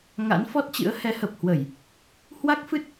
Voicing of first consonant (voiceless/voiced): voiced